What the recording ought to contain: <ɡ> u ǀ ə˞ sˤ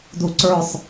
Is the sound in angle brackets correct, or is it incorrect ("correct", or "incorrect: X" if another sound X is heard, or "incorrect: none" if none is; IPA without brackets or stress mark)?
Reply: incorrect: d